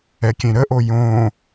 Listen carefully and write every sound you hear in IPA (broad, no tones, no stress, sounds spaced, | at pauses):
ɛ kʲ ẽ ɾ ə ʔ o j õ